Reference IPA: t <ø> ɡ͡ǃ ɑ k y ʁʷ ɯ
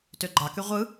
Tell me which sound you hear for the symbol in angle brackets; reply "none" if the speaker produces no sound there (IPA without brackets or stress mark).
ø